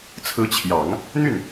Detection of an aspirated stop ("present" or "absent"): present